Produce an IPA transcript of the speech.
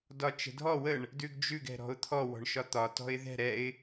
dɒt͡ʃə̤dʱɔ wəɳ | dʉɡd͡ʒʉɡ ɛ̤ɾɔ̤ʊ̯t̪ʰɔ wɔ̤ɳʃɒt̪ɒ tɔ̤ɪ̯ðɛ̤ ɾɛɪ̯

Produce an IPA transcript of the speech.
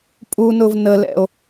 pʼunʊv nəlɛ̰o̯

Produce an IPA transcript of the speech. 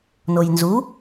nojnzu

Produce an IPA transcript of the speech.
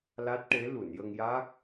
la˦˥t̚ʈe˧˥ lu˨˩˨njə˧ŋja˦˥k̚

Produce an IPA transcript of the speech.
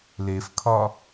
lefkʰɒ

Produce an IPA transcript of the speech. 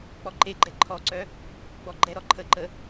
k͡pɔǃeɡ͡ǃɛ ǃʰɔǀœ | ɡ͡bɔɡ͡ǃɛɾɔ ǃʰəǃə

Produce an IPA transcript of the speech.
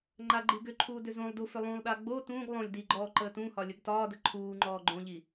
ŋ͡ǃaɡ͡ǃiɡʏǃʰuː dʏzõlˠdu fʏlˠũlˠɗa ɡ͡bo tũːɡ lˠõlʲ diɡ͡ǃɔː ǃəːtũhɒ lʲəɡtɒːdə ǃʰuː ŋ͡ǃɔːɡ͡ǃõʎi

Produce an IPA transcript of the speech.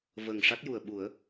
və˨˩ŋ ʂa˦˥t̚ju˨˩ə̯ɓu˨˩˦ə̯

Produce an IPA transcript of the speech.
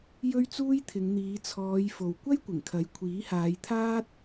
jɵ˥ɥt͡suː˥jt̪ʰɪ˨˧ŋ n̪iː˨˧t͡sʰɔː˨˧j fo˨wkʷɐ˥jkʷɪ˨˩ŋkʰɐ˨˥j kʷʰiː˨˥haː˨˧jt̪ʰaː˥t̚

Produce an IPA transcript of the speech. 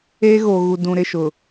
eː˦ɣoː˨ɣu˨ dũ˨ɾɪ˦˨ʃʊ˨

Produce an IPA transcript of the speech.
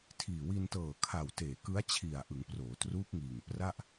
tʰiː˨˩wi˧ntɤː˨˩kʰa˨˩w teː˨˩kɯ˦˥a̯t͡ɕʰi˨˩a̯ ʔɯ˩˦ŋproː˩˦truː˦˥k̚ŋiː˨˩ŋ pra˥˩ʔ

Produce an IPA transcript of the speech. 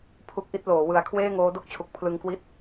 pʰu˦˥k̚ʔi˦˥t̚loː˩˦ wɯ˨˩a̯ kʰweː˥˩ŋoː˦˥do˥˩k̚t͡ɕʰu˨˩k̚ pʰlɯ˧ŋkwi˥˩t̚

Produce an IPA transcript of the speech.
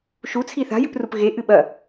ʃut͡sʰi θa̤jɨprup ɣeʔɨ ɓɐ

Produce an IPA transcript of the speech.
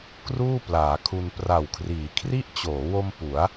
kruː˥˩plaː˩˦kʰu˧n pra˨˩wkʰriː˩˦ kʰri˦˥ʔt͡ɕoː˩˦wo˧m pu˩˦a̯

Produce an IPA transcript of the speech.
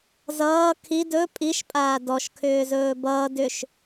zʌː kʰi dɵ pʼiʃpʼaː dɔʃkʰʏːzɵː bʌː dʏʃ

